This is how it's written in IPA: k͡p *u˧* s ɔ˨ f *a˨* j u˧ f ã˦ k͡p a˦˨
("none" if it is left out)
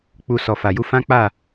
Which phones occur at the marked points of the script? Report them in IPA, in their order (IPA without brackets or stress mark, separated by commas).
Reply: u˧, a˨